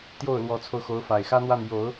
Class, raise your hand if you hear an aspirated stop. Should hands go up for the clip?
yes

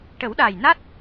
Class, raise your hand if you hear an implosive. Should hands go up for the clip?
yes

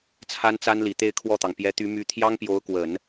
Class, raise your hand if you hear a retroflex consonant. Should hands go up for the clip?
no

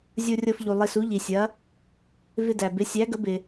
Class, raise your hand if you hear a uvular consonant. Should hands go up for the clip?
no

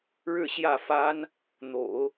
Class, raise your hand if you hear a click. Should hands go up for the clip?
no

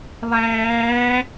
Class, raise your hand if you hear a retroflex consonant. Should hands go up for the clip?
no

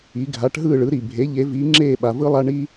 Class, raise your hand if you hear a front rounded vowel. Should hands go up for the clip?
no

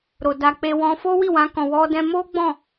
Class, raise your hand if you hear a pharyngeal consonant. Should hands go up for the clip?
no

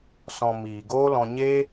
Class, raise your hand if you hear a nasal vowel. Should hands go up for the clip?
yes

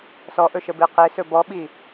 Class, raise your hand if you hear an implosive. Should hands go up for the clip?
yes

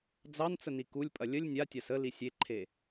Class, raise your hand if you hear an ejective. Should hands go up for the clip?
yes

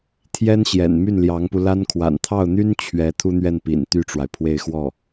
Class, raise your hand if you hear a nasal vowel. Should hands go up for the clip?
no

